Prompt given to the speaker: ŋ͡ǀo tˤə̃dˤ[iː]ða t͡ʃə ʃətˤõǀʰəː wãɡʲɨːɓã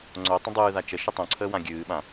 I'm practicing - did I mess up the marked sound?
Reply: yes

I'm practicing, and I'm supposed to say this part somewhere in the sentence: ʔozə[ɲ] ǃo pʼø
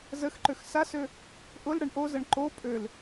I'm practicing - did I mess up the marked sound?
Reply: yes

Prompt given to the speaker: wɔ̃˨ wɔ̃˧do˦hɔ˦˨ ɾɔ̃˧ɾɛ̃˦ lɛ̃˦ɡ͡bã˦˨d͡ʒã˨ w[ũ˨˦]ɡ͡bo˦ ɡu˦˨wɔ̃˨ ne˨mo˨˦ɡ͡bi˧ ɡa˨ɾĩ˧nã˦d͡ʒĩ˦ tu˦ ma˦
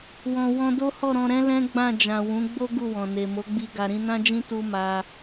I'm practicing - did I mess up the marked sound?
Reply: no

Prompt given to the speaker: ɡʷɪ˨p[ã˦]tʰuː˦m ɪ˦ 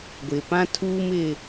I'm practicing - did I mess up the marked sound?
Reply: no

